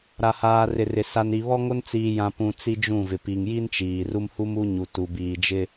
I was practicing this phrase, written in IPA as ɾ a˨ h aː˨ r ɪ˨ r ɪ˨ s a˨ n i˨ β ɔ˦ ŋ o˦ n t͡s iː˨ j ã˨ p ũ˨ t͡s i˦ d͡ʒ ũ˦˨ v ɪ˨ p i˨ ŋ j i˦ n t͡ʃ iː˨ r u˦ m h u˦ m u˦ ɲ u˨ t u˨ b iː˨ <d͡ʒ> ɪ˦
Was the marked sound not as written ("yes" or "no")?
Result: no